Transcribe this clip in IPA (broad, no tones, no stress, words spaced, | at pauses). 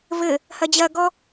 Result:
vɘ | hɐd͡ʑɐɡɔ